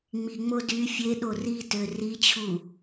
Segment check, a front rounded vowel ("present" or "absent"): present